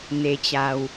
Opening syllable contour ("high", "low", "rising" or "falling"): low